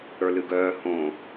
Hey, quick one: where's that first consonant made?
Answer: retroflex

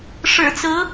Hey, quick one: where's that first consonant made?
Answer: retroflex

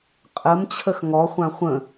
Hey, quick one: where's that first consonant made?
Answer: uvula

